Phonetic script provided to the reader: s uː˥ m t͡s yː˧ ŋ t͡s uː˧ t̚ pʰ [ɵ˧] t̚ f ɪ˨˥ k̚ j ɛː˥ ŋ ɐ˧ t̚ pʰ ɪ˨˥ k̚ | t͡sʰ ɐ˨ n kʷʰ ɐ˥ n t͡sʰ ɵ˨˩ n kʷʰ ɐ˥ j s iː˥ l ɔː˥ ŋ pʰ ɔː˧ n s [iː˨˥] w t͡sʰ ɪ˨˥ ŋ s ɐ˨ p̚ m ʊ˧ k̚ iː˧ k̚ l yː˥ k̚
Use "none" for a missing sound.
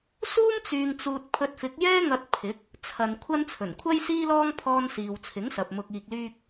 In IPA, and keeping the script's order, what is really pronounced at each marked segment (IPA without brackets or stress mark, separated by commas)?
ɵ˧, iː˨